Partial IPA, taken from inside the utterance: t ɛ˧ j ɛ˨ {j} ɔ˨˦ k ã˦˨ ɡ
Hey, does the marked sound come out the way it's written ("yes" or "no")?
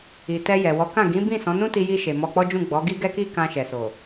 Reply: no